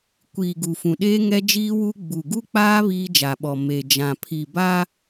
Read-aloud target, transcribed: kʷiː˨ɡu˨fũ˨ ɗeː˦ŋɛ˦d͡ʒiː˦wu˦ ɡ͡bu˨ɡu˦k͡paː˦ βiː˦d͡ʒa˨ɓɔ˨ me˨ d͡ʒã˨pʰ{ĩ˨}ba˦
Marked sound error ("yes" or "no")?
yes